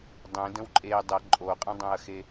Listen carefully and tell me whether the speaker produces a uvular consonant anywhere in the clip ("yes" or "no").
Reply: yes